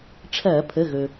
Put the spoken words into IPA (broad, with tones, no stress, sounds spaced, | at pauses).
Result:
ʈ͡ʂʰ ɐː˧˩˧ pʰ ə˩˧˩ ɣ ɵ˩